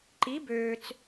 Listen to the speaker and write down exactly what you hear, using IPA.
ǃ i˩˥ b øː˩ t͡s

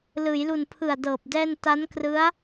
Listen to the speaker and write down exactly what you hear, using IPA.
l ɯː˩˦ j l u˨˩ n pʰ ɯ˨˩ a̯ d ɤː˨˩ p̚ d ɛː˥˩ n t a˦˥ n k r ɯ˦˥ a̯

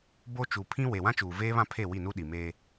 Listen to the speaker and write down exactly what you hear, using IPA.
b o˦ t͡ʃ u˨ pʰ ĩ˦ w e˨ w ã˦ t͡ʃ uː˨ v eː˦ β ã˦ pʰ e˦˨ w i˦˨ n u˦ ɗ i˨ m eː˦

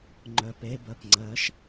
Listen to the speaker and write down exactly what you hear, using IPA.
ŋ͡ǃ œ p e b ɜ p ŋ͡ǀ ɜ ʃ

